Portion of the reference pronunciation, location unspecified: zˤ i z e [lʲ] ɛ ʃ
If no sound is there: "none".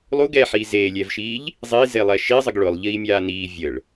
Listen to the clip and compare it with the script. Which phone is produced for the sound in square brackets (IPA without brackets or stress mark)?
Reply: lˠ